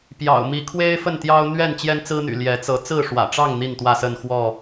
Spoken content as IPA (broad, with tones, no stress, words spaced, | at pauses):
pjɑ̰˨˩ʊ̯mi˨˦ kʰwe˦ɪ̯fə˥˨nt̪jɑ˦ʊ̯ n̪ɥɛ˥˨n t͡ɕjɛ˦nt͡sɹ̩˦n̪y̰˨˩ ljɛ˨˦t͡sɤ˨˦ t͡sɹ̩˥˨ʂwä̰˨˩ʈ͡ʂɑ˥˨ŋ n̪i˥˨nt̪wä˥˨sə˥˨n xwɔ˥˨